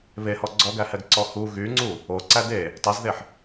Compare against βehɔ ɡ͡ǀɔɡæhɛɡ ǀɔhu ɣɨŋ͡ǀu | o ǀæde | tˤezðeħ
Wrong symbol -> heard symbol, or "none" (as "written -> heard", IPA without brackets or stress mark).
ɨ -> y